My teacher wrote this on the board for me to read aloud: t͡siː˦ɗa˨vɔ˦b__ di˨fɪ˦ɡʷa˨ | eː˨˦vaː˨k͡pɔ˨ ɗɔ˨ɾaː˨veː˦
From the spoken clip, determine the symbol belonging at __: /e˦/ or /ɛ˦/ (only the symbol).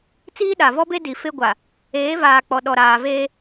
e˦